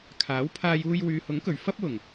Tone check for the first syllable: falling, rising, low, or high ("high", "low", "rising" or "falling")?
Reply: rising